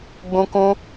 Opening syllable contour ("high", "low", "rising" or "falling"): high